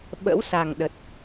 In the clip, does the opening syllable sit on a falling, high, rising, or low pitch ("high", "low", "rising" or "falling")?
rising